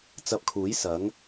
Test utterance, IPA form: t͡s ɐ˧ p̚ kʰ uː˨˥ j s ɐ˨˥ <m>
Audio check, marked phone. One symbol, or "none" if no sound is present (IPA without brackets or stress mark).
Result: ŋ